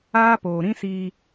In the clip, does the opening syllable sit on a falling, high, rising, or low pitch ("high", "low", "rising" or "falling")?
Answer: high